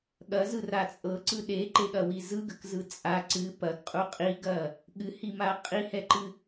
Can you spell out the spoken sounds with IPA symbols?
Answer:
ɠɐzɯra t͡sʼɤǀɯ ɗeǃeɠɐwi zɯɡəkzɯ t͡sʼa ǀɨ pɐɡqʼu qʼiɡɐ | ɠɨhima qʼihɛǃɨ

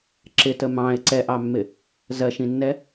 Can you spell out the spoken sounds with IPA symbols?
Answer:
ǁɪtə mɑ̃ɪ̯ ǀɛʔɑmːɪ | zɜʃĩnːɛ

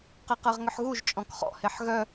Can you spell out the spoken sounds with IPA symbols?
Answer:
qeqɜʁŋʏħɣuʒ t͡ʃʼɔ̃kχɔ̰ heħɣœ

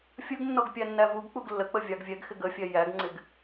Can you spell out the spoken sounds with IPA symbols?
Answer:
fʲəɡnːɔɡ pʲænːævuɡk͡puɡ lːək͡pə vʲɑɡvʲɛɡxɪɡ əfʲɛ jæɡŋ͡ǀɪɡ

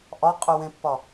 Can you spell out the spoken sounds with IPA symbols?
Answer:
ʔɒqʼy wẽpːɒ

